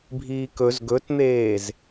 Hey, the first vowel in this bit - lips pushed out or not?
no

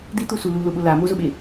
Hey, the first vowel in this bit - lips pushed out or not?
no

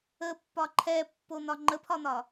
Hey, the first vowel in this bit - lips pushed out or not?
no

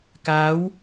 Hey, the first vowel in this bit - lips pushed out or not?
no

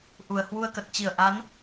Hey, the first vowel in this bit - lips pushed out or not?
yes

